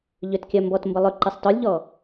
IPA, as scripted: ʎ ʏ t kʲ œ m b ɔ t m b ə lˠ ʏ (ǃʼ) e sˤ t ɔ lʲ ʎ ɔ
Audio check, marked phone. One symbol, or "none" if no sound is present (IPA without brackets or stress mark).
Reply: ǃ